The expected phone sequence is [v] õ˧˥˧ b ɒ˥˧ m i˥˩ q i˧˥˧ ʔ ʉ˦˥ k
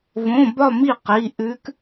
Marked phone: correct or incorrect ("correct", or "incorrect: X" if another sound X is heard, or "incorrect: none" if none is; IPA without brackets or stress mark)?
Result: correct